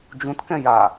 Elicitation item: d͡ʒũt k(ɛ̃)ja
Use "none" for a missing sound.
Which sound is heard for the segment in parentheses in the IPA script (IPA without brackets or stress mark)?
ɛ̃